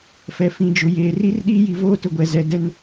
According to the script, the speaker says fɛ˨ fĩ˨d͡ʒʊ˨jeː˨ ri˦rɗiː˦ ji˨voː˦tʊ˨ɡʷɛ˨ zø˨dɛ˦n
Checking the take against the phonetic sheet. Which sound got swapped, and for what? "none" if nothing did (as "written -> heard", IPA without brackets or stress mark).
ø˨ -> ɛ˨